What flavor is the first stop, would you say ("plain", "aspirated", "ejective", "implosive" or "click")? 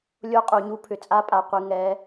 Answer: ejective